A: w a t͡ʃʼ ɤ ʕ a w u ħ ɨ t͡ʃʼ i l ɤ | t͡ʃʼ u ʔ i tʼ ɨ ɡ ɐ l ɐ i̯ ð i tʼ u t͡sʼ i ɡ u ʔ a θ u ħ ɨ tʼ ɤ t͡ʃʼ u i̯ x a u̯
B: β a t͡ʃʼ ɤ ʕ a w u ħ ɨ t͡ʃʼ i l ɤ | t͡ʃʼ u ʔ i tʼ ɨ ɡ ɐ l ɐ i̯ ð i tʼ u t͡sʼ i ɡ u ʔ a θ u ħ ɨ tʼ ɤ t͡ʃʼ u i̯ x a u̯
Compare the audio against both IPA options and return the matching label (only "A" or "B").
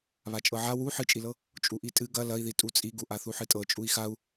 B